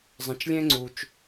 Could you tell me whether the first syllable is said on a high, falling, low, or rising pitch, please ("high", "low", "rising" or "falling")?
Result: low